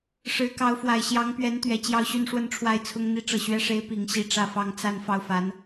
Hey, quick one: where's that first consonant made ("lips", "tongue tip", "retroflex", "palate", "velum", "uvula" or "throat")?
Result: retroflex